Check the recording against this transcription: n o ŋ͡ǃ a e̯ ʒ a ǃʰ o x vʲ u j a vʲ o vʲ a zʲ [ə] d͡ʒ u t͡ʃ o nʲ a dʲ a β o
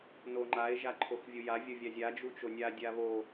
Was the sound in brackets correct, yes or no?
no